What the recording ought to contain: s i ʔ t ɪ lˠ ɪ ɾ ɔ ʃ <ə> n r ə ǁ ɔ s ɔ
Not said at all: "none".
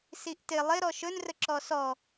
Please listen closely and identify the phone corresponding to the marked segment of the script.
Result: ɵ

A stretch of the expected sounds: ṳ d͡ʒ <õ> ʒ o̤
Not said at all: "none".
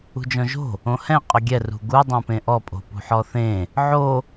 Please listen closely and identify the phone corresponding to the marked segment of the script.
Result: ɔ̃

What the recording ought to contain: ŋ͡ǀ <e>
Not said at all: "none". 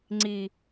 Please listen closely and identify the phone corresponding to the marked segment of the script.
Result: i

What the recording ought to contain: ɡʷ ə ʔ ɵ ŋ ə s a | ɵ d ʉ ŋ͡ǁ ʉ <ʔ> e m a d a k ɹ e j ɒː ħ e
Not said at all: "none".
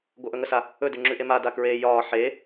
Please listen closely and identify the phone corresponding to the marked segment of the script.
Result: ʔ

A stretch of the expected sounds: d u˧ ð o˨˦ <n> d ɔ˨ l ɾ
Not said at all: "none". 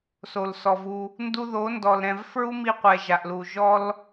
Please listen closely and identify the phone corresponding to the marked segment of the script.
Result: n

